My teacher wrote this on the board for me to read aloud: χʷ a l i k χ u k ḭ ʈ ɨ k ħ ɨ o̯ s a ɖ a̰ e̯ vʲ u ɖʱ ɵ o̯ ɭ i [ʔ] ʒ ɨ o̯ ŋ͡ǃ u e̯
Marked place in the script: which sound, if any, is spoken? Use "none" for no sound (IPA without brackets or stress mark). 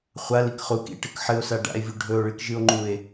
k